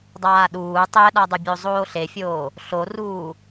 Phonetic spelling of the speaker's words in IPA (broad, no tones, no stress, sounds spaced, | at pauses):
dˤ aː ɗ uː tˤ ɛ ɗ a dˤ ɪ bʲ o zˤ oː ɬ e fʲ oː | ɬ o r uː